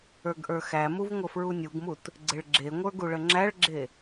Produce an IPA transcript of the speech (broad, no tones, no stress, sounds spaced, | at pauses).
ə˞ ɡ ʔ ə˞ x æ m u v ŋʷ ə f ɹ u nʲ u ɡ m u t | ɡ͡ǀ e ɭ ɡ͡ǁ e ŋʷ ə˞ ɡ u ɭ ə ŋ͡ǁ æ ɭ ɡ͡ǁ e